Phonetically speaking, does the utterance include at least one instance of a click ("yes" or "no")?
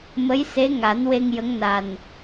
no